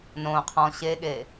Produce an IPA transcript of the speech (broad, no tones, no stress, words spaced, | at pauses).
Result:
nõ qʰɔ̃ ɕeɠe